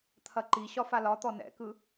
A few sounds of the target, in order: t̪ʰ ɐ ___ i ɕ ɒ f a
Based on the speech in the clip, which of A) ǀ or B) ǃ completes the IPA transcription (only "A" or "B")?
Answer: B